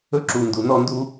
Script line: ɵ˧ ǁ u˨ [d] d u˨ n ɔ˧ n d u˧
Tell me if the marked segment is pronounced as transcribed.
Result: no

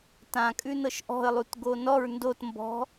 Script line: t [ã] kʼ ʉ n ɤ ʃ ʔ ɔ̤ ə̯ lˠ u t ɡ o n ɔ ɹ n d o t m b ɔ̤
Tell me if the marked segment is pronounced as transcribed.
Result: yes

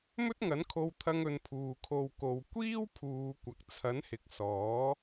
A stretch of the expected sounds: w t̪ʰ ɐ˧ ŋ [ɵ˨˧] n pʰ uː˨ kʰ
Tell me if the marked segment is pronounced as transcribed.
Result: no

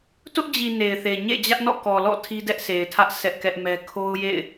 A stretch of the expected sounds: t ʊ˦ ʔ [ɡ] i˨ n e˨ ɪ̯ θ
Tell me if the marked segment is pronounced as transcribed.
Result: no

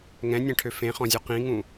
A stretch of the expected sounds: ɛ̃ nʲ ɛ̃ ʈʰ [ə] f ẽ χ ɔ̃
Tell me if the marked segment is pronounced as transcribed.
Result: no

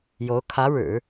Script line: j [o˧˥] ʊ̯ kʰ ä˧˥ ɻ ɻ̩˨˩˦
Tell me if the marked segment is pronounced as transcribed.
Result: yes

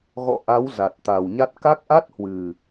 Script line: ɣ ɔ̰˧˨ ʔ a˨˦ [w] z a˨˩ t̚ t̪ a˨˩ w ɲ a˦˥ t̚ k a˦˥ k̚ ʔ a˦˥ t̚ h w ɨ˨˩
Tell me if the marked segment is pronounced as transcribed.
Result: yes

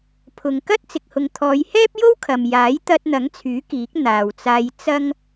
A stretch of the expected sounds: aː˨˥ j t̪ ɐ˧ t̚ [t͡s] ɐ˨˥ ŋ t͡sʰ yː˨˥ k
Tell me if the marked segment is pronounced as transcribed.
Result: no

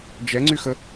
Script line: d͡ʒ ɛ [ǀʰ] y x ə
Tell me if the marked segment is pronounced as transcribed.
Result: no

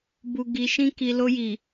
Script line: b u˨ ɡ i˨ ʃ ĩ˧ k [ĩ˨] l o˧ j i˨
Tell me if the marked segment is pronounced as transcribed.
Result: no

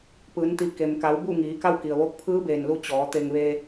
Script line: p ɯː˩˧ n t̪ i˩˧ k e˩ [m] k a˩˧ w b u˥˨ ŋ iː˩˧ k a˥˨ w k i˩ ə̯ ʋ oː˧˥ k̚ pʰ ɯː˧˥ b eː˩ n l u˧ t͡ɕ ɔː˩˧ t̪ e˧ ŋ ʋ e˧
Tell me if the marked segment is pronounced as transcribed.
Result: yes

